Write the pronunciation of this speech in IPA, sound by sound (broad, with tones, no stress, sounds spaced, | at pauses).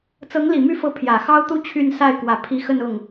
t͡s ɤ˧˥ ŋ l i˨˩ m y˥˩ f ɤ˧˥ pʰ j ä˨˩ x ɑ˥ ʊ̯ t̪ u˥ t͡ɕʰ y˥˧ n s a˥˩ ɪ̯ k w ä˨˩ pʰ i˧˥ x ə˥˧ n ʊ˥˩ ŋ